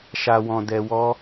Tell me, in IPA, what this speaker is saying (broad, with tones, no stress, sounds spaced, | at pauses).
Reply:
ʃ a˧ w ɔ̃˧ d ɛ˧ w ɔ˦